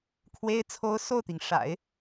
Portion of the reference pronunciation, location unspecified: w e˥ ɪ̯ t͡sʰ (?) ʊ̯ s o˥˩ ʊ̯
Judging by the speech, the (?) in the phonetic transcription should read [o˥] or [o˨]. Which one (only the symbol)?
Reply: o˥